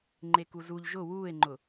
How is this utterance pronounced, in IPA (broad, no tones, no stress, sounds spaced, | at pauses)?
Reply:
ŋ͡ǃ e k u z u ʎ ʒ ʊ w uː e̯ ŋ͡ǃ ʊ